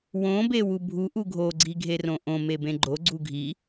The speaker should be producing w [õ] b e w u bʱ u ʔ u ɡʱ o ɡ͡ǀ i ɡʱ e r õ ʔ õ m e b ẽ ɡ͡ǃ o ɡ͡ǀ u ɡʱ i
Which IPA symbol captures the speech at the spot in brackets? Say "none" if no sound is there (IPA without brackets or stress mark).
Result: õ